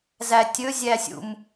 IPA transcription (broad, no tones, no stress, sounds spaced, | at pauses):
z æ tʲ ɵ zʲ æ sʲ ṵ m